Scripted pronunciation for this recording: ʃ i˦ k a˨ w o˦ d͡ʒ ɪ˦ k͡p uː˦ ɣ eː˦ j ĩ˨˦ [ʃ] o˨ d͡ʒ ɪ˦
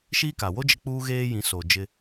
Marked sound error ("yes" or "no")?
yes